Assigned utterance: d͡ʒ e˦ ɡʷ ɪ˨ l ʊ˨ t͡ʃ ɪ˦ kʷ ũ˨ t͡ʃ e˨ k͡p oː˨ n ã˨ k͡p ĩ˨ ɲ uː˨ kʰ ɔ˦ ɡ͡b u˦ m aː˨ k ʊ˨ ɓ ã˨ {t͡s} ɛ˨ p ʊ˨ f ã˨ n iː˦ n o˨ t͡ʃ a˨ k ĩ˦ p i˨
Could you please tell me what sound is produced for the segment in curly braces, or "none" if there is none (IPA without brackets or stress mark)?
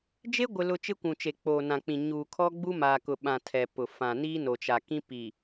tʰ